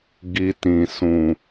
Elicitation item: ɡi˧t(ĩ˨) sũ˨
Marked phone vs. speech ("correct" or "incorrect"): correct